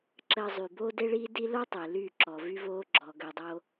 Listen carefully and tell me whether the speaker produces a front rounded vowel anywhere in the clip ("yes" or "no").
yes